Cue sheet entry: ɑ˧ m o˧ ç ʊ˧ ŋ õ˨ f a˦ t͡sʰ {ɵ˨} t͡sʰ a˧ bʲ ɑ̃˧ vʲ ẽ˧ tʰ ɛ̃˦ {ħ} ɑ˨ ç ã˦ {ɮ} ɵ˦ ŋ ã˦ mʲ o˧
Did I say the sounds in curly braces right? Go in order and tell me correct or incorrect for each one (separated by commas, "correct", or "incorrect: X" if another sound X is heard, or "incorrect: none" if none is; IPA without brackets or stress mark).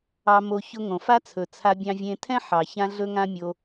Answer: correct, correct, correct